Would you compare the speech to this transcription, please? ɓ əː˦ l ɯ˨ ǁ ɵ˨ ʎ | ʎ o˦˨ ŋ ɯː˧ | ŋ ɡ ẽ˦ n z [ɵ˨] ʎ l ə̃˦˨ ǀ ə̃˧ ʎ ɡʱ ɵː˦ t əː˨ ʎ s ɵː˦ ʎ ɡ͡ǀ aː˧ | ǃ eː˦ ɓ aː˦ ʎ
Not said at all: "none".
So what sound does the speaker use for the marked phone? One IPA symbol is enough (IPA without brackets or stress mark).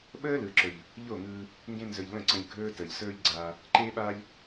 ɵ˧